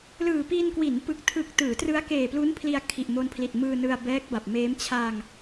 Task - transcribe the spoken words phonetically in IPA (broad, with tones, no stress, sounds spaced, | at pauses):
l ɯː˨˩ p i˧ n k w i˩˦ n p ɯ˨˩ k̚ tʰ ɯ˨˩ k̚ t ɯː˩˦ t r ɯ˦˥ a̯ k eː˨˩ p l u˦˥ n pʰ l i˧ a̯ kʰ i˨˩ ʔ m o˧ n pʰ l i˨˩ t̚ m ɯː˧ n ɯ˧ a̯ b ɛː˦˥ k̚ b a˨˩ p̚ m eː˦˥ m t͡ɕʰ a˧ ŋ